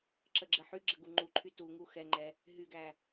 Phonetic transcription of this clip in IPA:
ǁ ə ɡ͡ǁ ə ħ y ɡ͡ǁ ə ɡ u ŋ͡ǃ u ǃʰ y t u ŋ u x ɛ ŋ͡ǃ ɛ | ɦ y ɡ æ

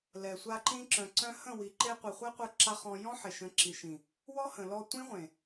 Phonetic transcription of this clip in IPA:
l ɛ˨ sʷ a˧ ǃ ĩ˧ ǁ œ̃˨ ǀ œ̃˧ h ə̃˦˨ w i˨ ǃ e˧ qʷ i˨ χʷ ɛ˦ qʷ œ˧ ǁ a˦ χ ɔ̃˧ j ɔ̃˦ ħ e˨ ʃ ə̃˨˦ ǁ i˨ ʃ ĩ˨ | w ɔ˦ h ə̃˨ l ɔ˧ tʷ ĩ˦ ʁʷ ẽ˨

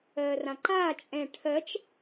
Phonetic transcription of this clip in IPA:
ɜː r ã ǃ aː t͡ʃʼ ɛ̃ ʈʰ ɜ t͡ʃ

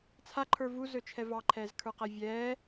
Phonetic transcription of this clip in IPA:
t͡sʰ a ǃʰ ə˞ v u z ɵ t͡ʃʰ ɛ v ɑ ǃʰ ɛː z kʰ ə˞ q æ vʲ ɛː

